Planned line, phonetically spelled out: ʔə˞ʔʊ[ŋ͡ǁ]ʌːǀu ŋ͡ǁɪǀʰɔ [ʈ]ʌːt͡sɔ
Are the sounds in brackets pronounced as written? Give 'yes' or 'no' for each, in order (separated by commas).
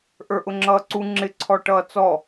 yes, yes